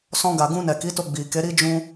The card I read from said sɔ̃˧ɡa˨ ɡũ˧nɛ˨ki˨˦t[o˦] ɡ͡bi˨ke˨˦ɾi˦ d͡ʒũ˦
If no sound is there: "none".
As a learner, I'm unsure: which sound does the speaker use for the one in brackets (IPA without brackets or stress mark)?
o˧